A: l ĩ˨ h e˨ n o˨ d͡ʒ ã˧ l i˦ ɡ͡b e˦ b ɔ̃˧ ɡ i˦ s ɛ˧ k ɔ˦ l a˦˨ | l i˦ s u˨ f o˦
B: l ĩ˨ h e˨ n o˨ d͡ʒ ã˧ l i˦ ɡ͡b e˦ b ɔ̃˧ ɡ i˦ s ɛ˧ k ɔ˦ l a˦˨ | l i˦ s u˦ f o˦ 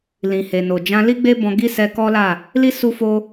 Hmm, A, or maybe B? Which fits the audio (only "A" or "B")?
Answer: B